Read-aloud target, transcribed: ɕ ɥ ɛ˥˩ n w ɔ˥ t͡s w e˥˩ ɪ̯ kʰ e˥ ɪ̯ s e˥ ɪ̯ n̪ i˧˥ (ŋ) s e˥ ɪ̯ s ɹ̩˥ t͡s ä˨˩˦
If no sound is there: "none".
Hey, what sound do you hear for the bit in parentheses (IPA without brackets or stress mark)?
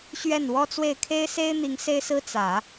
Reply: ŋ